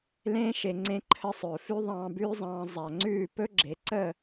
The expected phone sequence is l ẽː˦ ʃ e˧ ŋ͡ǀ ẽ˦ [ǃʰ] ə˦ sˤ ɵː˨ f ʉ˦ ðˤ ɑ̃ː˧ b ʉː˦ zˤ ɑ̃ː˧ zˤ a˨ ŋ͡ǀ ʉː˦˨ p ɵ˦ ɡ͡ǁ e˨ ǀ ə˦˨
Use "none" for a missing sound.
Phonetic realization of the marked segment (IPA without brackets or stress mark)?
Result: ǃʰ